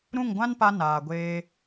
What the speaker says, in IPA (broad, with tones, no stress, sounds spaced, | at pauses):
ɾ ũ˦˨ ŋ ɡʷ ã˦ n p a˧ n aː˨ ɡʷ eː˧